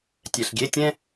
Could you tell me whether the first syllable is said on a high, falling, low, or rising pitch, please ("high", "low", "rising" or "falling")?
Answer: low